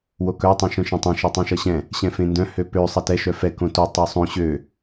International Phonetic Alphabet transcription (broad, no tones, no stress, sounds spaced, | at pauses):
w o k œ tˤ œ̃ ʃ œ̃ ʃ ɛ̃ tˤ ɛ̃ ʃ e tˤ ɛ̃ ʃ ʌ ɕ ɛ̃ | ɕ ɛ̃ f ẽ n d œ̃ h ø p ø sˤ ɛ t ɛ ʃ œ f ɛ k õ t o tˤ œ sˤ õ ɕ ø